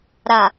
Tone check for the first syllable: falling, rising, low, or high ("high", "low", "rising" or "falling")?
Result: low